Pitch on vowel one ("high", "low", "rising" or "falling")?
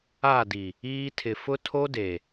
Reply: falling